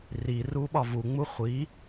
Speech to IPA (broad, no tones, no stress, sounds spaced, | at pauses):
r i r u ɓ ɒ v u ŋ͡m u χʷ i